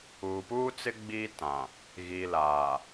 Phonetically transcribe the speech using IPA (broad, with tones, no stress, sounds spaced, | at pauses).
uː˨ p uː˦ t͡s ɪ˦ ɡ͡b iː˦ t ã˨ | ɣ iː˨ l aː˨